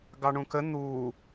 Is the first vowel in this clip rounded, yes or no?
no